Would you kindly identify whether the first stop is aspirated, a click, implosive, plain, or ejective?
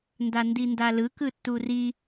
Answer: plain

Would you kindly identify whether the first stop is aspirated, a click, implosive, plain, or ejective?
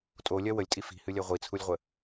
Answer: ejective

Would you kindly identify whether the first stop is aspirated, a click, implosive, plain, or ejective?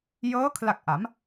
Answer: aspirated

